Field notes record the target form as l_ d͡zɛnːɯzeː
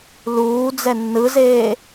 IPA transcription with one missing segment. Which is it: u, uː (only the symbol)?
uː